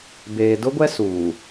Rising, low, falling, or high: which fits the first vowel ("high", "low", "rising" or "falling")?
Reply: low